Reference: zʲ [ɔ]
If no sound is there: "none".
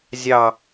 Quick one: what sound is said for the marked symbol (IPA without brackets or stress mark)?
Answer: ɑ